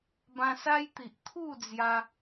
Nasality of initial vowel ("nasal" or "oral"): nasal